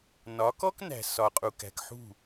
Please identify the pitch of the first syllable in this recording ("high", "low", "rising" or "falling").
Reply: rising